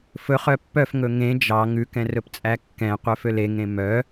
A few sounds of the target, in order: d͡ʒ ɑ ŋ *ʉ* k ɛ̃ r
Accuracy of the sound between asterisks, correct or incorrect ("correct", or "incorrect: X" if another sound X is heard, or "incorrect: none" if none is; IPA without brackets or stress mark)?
correct